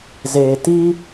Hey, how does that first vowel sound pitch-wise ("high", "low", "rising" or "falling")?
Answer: low